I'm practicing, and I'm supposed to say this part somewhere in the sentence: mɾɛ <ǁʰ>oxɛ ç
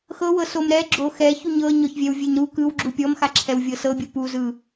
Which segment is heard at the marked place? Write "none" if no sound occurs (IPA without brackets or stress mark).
ɡ͡ǁ